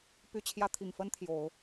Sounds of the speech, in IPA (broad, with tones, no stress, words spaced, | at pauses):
py˧˥t͡ɕʰjä˧˥ t̪ʰi˨˩ŋfə˥nt̪ʰjo˨˩˦ʊ̯